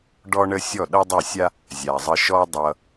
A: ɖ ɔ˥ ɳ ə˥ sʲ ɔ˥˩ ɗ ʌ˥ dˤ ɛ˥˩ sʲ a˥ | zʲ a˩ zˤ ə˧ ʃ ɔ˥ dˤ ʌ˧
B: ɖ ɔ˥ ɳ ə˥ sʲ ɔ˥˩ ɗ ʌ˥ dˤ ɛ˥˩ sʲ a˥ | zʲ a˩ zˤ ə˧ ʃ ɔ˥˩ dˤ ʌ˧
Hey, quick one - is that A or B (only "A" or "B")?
A